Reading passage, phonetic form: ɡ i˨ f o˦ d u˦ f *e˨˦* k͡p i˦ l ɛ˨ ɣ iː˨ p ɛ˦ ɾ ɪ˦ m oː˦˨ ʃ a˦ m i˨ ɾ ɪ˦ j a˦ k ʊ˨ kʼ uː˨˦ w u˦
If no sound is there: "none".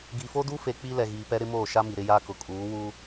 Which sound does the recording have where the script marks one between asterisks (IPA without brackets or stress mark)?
e˨